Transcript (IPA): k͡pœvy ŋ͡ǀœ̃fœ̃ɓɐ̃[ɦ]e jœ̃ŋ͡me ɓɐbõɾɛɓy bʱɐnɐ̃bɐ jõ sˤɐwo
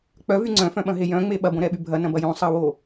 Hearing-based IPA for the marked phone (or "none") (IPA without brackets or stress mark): ɦ